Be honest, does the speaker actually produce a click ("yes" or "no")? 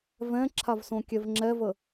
yes